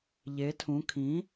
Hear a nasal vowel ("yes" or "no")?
yes